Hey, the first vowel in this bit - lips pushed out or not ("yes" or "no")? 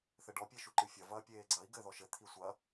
no